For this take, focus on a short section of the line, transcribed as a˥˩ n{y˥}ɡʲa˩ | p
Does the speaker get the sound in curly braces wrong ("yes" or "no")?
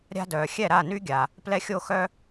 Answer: no